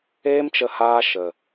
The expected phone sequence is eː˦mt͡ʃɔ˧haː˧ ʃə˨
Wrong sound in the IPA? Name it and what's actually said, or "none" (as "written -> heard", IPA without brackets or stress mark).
ɔ˧ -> ə˧